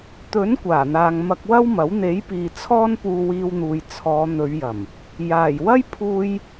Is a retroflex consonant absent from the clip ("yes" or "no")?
yes